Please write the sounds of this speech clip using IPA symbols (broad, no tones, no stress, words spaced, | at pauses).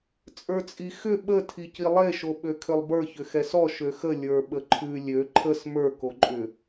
t͡sʼə˞t͡sʼixʏ ɓə tʰicilˠe ʃoɓøkʰʏlˠbə˞ çʏxɛsɔ ʃøxə lʲə˞ɓəǃʰʉ lʲø ǃʰəs mə˞ koǃʼʏ